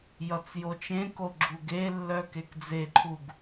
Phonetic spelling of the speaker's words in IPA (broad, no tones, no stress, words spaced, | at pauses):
jʌt͡sjot͡ʃẽko ɡ͡ǁuɡelːœ kekd͡zeǃʰuɡ